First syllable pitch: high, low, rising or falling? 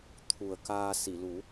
low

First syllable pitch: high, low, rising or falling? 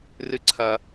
high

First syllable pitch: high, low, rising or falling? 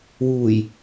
low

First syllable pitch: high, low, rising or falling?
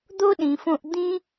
high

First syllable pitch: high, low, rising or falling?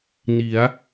rising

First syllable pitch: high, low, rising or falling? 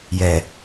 low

